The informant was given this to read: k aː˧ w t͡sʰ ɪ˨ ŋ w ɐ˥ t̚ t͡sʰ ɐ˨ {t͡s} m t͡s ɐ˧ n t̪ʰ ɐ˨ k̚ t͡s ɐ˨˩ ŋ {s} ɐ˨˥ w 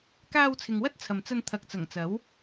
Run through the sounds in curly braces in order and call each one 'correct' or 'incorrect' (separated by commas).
incorrect, incorrect